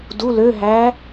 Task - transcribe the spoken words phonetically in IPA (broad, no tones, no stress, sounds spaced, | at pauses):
d u l ø ɦ æ